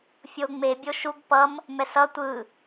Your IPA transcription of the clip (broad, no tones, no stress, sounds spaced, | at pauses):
fʲ o ŋ͡m e bʲ o ʃ u ɡ p ʌ m | m ɛ s ʌ tʷ ɯ